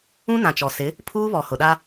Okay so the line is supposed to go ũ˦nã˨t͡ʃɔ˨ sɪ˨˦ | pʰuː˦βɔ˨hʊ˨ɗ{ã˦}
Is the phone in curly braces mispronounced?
yes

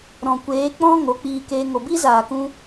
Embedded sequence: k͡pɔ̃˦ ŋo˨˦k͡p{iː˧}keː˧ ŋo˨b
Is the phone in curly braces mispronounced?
no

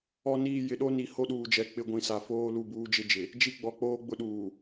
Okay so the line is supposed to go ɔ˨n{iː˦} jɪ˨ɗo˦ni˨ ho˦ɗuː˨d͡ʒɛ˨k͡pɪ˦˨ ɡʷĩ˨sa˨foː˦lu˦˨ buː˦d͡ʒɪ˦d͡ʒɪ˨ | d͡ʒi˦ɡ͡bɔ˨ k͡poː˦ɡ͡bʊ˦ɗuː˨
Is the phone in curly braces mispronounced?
yes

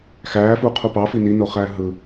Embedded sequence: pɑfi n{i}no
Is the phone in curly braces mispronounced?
no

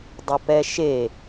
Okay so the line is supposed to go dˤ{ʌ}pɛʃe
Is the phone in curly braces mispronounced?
no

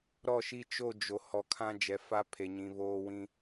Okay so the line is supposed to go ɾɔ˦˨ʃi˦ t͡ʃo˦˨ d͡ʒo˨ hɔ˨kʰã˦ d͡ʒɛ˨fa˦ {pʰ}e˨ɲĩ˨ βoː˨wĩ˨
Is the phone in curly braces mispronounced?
no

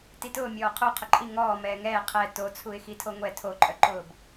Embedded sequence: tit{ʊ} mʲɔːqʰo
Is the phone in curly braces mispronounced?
yes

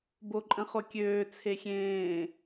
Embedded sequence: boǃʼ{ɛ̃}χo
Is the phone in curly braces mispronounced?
yes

